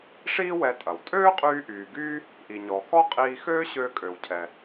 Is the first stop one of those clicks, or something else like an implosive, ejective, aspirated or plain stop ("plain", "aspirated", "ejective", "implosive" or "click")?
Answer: ejective